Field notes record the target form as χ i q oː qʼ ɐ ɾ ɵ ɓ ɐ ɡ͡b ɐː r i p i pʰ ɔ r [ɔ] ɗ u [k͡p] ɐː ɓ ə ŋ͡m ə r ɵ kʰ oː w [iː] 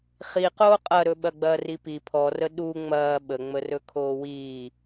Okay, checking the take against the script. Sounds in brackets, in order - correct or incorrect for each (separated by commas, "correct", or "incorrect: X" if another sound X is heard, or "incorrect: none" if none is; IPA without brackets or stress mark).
incorrect: ə, incorrect: ŋ͡m, correct